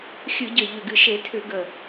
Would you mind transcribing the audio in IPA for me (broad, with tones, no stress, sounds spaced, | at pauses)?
xʲ ɨ˧˩˧ ɟ ə˨˩ ʎ ʏ˨˩ ɡ ɨ˨˩ ʃ e˧˩˧ tʰ ʏ˧˩˧ ɡ ə˨˩